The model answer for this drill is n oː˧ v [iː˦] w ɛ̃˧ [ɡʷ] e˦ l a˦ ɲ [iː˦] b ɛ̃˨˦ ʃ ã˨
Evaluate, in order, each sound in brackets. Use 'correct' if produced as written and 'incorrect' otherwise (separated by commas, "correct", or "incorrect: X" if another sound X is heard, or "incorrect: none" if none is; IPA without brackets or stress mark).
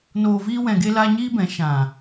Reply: correct, incorrect: ɡ, correct